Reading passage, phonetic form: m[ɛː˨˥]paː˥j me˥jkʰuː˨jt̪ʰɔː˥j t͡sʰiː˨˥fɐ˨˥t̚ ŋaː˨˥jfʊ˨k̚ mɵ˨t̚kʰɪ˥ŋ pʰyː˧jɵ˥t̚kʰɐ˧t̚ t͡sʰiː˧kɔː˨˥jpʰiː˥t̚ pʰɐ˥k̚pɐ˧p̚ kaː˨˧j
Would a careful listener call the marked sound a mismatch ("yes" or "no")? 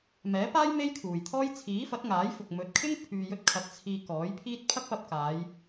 no